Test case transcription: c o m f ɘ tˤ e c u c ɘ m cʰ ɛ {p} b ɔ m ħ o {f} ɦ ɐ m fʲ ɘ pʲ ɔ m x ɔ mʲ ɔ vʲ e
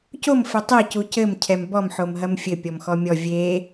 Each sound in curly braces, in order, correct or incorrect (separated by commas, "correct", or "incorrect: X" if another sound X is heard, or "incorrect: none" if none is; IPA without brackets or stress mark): incorrect: m, incorrect: m